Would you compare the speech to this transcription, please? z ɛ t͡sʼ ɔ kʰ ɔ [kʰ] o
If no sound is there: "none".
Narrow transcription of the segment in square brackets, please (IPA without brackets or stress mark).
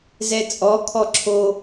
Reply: ǁʰ